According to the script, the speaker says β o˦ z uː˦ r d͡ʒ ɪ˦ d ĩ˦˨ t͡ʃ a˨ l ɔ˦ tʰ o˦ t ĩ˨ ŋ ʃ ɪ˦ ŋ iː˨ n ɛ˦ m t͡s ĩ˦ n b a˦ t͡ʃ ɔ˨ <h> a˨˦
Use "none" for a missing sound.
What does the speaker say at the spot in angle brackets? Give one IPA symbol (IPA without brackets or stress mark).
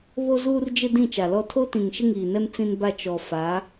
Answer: f